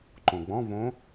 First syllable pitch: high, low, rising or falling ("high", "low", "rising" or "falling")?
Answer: low